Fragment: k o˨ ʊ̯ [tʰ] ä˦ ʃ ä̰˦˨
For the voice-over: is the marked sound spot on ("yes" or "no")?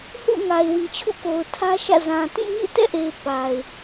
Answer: yes